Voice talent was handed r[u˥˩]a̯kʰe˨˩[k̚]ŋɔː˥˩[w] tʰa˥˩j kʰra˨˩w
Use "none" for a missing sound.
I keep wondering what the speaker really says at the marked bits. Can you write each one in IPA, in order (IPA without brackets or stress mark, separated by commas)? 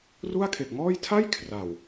u˥˩, k̚, j